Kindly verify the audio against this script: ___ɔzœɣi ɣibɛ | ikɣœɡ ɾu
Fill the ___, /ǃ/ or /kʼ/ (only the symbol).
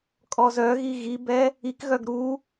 kʼ